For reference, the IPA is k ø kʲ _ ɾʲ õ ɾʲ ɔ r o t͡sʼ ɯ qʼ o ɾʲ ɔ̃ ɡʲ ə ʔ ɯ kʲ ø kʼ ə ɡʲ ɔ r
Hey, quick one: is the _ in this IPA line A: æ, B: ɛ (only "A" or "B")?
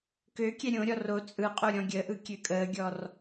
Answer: B